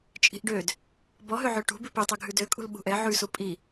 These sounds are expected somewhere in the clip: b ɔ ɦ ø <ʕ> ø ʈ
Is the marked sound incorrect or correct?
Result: correct